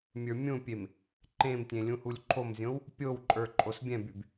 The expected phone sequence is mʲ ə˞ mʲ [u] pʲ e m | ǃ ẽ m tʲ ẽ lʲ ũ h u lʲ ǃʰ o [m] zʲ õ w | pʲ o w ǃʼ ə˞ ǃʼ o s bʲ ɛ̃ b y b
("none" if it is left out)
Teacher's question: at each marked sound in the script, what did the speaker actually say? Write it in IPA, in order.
ũ, m

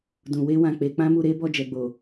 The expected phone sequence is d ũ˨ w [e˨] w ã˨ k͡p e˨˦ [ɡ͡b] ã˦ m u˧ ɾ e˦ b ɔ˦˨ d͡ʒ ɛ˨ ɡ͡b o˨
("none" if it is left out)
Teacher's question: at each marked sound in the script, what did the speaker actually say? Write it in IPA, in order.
e˧, k͡p

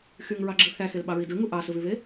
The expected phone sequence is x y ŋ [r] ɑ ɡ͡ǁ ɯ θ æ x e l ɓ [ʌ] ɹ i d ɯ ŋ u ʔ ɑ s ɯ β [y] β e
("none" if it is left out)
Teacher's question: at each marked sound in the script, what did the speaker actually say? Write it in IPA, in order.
ɹ, ɑ, y

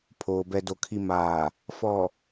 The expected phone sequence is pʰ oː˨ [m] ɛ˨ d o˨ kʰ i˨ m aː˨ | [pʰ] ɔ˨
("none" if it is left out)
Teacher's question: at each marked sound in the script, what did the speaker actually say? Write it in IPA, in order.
b, f

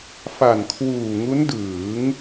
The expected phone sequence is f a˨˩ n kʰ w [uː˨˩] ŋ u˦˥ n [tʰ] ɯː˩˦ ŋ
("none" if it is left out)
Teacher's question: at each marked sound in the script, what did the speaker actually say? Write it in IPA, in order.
uː˨˩, d

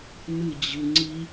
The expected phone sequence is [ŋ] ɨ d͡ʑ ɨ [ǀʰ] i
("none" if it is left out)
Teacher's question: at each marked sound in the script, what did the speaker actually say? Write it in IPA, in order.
n, ŋ͡ǀ

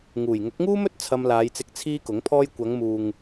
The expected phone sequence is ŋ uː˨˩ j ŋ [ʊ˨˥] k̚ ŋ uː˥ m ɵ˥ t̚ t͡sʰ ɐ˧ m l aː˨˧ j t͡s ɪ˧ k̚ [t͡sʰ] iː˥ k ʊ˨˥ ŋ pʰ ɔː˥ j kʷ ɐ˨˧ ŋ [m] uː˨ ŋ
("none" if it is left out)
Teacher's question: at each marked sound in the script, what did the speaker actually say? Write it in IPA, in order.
ʊ˨˥, t͡sʰ, m

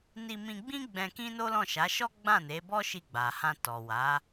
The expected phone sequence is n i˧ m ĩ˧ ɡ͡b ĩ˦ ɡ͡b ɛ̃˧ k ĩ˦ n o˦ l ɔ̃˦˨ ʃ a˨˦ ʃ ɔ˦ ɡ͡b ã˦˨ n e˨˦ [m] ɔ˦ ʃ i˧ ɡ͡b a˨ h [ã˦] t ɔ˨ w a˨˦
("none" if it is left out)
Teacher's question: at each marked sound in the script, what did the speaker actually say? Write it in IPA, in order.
b, ã˧

